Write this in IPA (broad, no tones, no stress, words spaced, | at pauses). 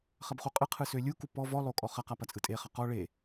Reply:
χɐbχuqʼɯqʰɯ sølʲuku pɔ vɔlˠo kʼɔχɐqa pɐt͡sʼɯtʼeχɐ qɔ ɭe